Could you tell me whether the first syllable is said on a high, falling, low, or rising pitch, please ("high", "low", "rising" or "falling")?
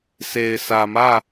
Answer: low